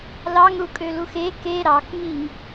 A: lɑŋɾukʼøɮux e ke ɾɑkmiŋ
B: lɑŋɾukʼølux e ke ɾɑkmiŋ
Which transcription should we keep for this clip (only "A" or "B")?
B